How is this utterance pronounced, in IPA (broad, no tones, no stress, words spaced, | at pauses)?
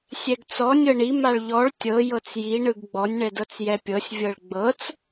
sʲɛɡt͡sɔ nʲɤɳi maɭʎɔɭ tʲɤ jɤt͡sji ɳɯɡɡ͡bɔnʲ ɳɛdɤt͡sjɛpʲɤsʲ vʲɤɭɡ͡bɤt͡s